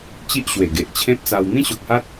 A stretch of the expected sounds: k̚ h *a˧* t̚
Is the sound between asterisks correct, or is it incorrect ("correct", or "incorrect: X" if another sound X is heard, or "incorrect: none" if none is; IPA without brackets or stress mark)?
incorrect: a˦